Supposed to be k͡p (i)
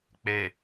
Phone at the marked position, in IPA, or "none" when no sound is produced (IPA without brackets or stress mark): e